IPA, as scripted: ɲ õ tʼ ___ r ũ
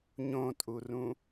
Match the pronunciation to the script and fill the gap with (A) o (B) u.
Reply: B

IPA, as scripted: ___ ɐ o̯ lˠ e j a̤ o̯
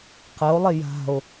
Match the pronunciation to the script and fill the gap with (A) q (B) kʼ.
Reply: A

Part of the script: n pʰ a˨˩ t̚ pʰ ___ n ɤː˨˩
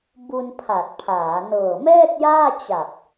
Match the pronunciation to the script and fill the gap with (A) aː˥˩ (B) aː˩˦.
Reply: B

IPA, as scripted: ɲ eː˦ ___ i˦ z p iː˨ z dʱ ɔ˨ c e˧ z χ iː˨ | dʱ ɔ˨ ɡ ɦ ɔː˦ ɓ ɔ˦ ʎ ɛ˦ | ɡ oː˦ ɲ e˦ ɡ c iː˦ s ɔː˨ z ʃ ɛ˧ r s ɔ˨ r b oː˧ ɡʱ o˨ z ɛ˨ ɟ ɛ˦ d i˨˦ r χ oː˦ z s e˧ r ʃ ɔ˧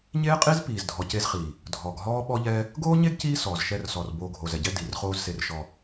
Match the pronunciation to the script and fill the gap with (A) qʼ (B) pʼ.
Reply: A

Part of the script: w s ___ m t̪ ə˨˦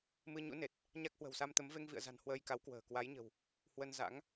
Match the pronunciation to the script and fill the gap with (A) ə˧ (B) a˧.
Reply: B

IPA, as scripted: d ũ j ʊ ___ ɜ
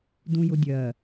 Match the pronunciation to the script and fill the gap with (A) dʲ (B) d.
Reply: A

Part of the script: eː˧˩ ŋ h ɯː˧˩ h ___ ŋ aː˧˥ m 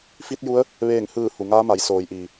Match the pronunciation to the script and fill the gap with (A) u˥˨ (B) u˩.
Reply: B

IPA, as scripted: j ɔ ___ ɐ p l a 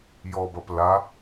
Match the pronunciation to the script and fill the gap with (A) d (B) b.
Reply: B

